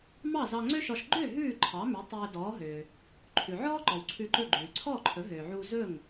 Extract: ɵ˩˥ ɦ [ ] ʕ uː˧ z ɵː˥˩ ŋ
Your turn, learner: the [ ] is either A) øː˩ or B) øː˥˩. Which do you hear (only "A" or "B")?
A